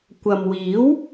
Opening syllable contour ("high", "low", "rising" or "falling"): low